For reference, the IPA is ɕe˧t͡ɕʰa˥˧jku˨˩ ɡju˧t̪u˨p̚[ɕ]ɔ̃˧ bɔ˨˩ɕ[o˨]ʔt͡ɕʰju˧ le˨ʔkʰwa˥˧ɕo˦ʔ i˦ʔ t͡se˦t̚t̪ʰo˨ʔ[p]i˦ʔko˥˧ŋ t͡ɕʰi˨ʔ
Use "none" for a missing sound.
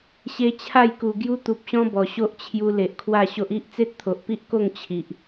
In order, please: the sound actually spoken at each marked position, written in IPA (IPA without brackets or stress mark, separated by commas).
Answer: ɕ, o˦, p